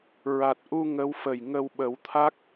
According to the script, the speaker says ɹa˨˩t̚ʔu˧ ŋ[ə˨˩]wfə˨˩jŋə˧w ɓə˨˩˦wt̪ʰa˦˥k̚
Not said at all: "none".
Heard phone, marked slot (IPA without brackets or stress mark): ə˧˥